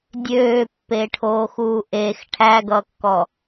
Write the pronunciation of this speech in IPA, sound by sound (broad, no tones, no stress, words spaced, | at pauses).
dʲøːpːeʈʰoːxuː ʔex ʈʰæɡʌkːɔ